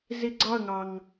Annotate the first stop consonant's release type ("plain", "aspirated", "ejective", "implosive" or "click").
click